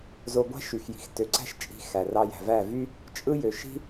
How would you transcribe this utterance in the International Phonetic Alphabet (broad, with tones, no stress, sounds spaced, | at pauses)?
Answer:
z o˧ ɡʷ æ̤˦ ʃ y˨ x j i̤˨ x t ø˨ ǀ æ̤˦ ʃ t͡ʃʼ i̤˧ x æ˨ r ɑ˧ j æ̤˨ v æ˦˨ v y˦ | t͡ʃʼ ɯ˦ j ø˨ ʃ i̤˦